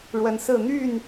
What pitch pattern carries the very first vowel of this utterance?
rising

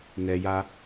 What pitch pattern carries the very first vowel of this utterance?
low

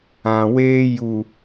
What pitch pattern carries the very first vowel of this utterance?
low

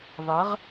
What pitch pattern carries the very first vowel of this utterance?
rising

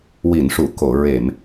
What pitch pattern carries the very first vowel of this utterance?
low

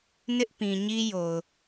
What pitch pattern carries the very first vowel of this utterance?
high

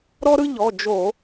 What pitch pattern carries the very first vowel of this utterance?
high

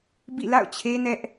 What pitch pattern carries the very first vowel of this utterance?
falling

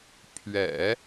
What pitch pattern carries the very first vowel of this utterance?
low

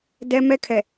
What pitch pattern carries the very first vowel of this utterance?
high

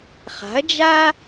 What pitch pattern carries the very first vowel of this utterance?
rising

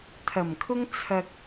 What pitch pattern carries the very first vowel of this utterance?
low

